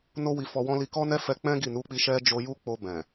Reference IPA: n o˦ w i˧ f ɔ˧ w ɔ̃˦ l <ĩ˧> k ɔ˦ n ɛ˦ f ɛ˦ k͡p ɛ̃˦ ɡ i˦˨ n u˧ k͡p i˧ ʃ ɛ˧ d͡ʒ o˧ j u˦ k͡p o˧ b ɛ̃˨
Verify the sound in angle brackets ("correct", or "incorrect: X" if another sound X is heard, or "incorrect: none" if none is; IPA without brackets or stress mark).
incorrect: i˧